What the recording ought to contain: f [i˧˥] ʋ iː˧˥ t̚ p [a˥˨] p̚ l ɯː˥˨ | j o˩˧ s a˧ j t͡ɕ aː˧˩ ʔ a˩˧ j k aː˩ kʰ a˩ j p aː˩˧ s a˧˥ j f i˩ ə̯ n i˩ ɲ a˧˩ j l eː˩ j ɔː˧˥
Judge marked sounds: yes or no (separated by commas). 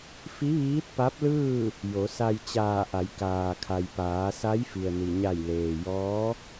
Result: yes, no